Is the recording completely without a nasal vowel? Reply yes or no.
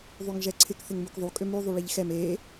yes